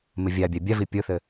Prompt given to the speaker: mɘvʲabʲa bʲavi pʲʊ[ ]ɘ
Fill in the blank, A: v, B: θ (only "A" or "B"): B